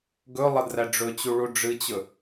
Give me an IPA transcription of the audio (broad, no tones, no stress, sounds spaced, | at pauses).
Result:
ɡ ɵ lˠ ʌ d r æ ɖ͡ʐ ɵ t͡ɕ u ɭ u ɖ͡ʐ ɨ t͡ɕ ɵ